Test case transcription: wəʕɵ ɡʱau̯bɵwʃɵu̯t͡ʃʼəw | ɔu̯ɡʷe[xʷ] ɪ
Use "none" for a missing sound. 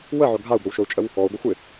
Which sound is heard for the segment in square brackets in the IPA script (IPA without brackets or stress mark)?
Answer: xʷ